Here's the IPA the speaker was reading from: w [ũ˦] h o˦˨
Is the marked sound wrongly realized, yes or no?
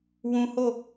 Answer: no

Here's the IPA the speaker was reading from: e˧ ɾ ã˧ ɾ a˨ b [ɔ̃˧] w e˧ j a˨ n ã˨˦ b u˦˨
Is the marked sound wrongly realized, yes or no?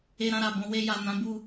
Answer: no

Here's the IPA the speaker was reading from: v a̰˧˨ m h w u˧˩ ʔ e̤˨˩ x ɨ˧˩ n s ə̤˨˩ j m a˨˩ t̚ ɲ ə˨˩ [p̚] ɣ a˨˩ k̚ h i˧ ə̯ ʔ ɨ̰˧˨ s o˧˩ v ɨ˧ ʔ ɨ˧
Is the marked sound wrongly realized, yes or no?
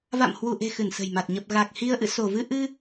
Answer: no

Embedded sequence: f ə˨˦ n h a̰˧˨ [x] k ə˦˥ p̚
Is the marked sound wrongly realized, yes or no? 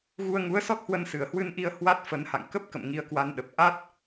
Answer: yes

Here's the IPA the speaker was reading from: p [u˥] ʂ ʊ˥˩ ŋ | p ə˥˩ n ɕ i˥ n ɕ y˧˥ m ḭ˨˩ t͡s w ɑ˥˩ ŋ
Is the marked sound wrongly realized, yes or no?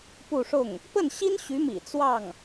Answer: yes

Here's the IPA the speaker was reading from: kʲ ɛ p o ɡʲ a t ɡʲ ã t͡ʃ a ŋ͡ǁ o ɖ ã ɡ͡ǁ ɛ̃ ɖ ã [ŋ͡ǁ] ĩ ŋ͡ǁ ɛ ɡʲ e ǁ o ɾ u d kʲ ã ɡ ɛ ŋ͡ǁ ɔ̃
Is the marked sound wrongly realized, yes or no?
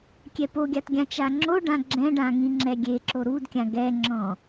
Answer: yes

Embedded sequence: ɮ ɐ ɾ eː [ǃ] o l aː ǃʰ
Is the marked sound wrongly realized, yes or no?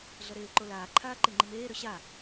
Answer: no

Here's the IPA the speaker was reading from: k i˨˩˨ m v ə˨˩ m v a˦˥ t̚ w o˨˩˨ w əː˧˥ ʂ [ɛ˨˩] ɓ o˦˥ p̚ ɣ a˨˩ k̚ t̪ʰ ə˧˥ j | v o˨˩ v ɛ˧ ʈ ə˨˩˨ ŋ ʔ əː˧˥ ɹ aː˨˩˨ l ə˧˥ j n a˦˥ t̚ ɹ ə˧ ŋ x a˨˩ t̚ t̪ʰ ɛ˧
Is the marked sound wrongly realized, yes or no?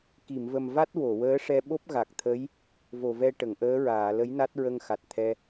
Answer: yes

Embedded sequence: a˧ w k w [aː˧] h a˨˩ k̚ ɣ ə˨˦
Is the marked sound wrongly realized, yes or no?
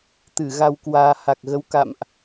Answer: no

